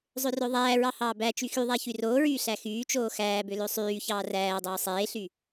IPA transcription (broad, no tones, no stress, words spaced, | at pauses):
zˤørøðˤæːɹɑ hɑːbæt͡ʃy xyðˤæ çyroːɹyː ɬæxyːt͡ʃoː xæːbø løsˤyːçɑː ræːdˤoː sˤeːɬy